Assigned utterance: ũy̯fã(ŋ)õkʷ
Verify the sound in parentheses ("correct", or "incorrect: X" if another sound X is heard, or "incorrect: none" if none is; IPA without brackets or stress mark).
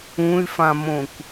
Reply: incorrect: m